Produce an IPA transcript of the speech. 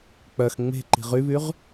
k͡p œ x ŋ͡m e̤ ǃ i̤ ʁ y β y ʁ

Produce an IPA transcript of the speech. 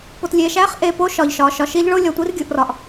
p o˧ t lʲ e˧ ʃ æ˥ χ ʔ e˧ p o˥ ʃ ɒ˧ ʎ ʃ ɒ˧ ʃ ɒ˧ ʃ i˥ ʎ ɭ o˥ lʲ ɒ˧ tʷ i˥ r ɡʲ u˧ ʔ r ɒ˧ ʔ

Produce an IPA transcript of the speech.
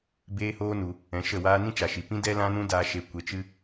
b eː˦ h oː˦ n u˧ | ɛ̃˨˦ ʃ ə˦˨ w aː˦ n ĩ˦ t͡ʃ a˨ ʃ i˨ p ĩ˦ d ɛ˦ l ã˦ n ũ˦ d aː˧ ʃ e˧ kʷ e˧ t͡ʃ ɨ˦

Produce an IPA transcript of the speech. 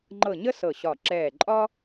ŋ͡ǃ ɤ˧˩ ɲ ə˥ s ɤ˧˩ ɕ ɒ˧˩ ǁ ɛː˧˩ ǃʼ ɒ˥

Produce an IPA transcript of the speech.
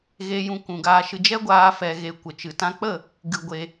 ɣ e˦ j ũ˦ kʷ ũ˧ ɡ aː˦ ʃ ɨ˦ d͡ʒ ɛ˦ ɡʷ aː˧ f ɛ˧ ɣ e˧ kʷ ə˨ t͡ʃ ɨ˨ t ã˧ k͡p ə˦˨ | ɡ ɨ˧ ɡʷ e˧

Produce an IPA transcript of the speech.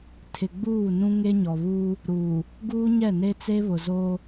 tʰ ɪ˨ ɡ͡b uː˦˨ n ũ˦ ŋ e˦ ɲ ɔ˨ β uː˦ | ɾ uː˨ | ɡ uː˦ ɲ ɛ˦˨ n e˦ t͡s e˦ β ʊ˨ z oː˦

